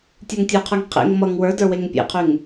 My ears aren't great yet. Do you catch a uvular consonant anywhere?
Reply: yes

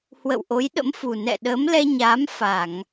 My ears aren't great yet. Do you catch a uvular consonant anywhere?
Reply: no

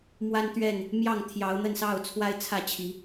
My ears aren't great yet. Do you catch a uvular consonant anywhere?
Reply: no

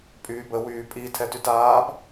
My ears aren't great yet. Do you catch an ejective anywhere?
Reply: yes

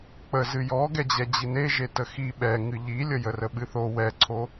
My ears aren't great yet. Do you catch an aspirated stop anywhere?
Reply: yes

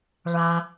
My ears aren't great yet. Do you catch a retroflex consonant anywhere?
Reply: yes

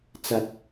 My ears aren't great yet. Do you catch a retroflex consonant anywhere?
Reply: no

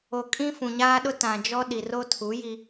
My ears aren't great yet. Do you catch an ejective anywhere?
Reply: yes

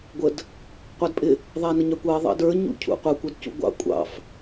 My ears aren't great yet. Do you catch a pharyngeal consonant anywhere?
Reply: no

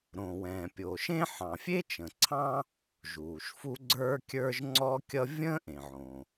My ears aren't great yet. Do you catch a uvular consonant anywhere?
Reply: no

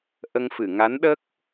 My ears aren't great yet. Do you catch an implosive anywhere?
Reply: yes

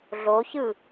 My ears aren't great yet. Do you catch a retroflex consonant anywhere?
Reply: no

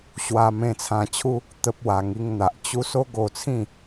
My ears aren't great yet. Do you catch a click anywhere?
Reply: no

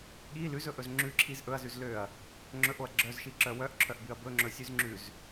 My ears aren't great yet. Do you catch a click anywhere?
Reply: yes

